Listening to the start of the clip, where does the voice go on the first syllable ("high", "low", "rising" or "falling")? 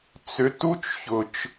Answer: rising